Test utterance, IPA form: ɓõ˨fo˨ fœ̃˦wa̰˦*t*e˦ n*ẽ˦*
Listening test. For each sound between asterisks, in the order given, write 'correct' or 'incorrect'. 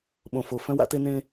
correct, correct

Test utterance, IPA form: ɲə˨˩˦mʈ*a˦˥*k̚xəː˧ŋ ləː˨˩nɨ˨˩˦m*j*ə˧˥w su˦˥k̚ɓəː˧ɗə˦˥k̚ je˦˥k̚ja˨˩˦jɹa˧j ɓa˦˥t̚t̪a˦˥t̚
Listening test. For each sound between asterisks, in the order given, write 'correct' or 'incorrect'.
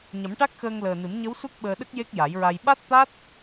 correct, incorrect

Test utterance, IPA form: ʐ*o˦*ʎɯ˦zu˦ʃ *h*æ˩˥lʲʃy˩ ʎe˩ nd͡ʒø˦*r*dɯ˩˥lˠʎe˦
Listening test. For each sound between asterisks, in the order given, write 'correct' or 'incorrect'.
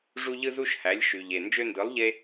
incorrect, correct, incorrect

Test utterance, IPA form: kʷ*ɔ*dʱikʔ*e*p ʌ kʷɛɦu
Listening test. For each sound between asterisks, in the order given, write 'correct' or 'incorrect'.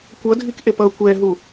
incorrect, correct

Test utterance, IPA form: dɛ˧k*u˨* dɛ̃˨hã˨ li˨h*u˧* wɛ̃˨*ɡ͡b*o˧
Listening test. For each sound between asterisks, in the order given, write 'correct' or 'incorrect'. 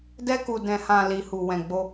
correct, incorrect, correct

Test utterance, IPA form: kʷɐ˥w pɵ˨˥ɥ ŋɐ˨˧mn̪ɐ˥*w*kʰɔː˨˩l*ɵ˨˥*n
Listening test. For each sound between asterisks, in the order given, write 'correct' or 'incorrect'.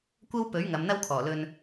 correct, incorrect

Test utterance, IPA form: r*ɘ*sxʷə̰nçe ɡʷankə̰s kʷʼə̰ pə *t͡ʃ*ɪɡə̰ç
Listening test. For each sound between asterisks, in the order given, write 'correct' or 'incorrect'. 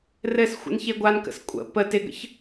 correct, incorrect

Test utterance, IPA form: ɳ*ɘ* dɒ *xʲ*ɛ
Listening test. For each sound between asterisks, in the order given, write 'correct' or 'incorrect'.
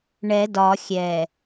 incorrect, correct

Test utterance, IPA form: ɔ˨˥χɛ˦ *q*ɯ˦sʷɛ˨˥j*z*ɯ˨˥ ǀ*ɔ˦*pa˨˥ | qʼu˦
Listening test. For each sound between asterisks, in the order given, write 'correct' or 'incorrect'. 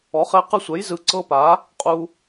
correct, correct, incorrect

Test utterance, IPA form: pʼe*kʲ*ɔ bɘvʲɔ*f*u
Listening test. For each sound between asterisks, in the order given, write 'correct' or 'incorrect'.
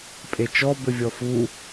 incorrect, correct

